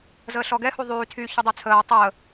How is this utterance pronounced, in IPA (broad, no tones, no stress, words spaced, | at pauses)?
zəːɬɔɡɛ huðˤyː tʰy çudˤyt͡sʰəː tˤəː